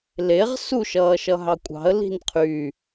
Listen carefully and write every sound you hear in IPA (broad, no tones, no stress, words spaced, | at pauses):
leʁ suʃʌːʃʌɦɑ kʷʼɑ̤ə̯li̤n qʰy